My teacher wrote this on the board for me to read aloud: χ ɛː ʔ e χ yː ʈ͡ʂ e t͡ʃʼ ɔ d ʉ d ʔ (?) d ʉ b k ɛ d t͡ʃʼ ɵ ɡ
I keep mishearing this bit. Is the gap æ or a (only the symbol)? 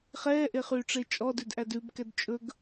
æ